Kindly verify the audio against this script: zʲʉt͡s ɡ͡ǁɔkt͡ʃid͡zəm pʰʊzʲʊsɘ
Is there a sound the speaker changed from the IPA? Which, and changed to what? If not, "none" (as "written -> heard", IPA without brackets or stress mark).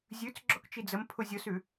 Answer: ɘ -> ʉ